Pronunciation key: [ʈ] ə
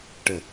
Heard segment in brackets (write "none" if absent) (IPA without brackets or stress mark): ʈ